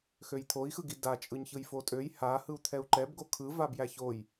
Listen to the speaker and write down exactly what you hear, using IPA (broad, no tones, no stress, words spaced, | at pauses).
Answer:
xøjt̪ʰoi̯xɯɡi da t͡ʃʼɯɲçɯjfotʼøj ha hɯu̯t̪ʰɛu̯ǃɛb ɡokʰɯ vabjæçoj